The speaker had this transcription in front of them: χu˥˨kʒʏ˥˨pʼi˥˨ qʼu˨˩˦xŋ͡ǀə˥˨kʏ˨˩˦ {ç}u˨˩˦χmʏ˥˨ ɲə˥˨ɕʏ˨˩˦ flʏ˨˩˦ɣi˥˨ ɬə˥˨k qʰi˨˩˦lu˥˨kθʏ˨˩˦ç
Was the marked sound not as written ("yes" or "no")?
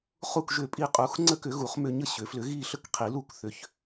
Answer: yes